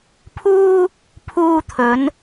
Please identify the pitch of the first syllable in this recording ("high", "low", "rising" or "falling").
high